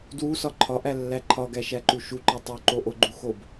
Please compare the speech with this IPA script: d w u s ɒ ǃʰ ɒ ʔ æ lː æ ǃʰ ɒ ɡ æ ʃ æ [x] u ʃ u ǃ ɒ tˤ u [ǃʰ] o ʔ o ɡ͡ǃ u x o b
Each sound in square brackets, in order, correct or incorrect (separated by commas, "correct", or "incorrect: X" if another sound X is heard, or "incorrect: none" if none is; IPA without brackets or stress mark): incorrect: ǃ, incorrect: ǃ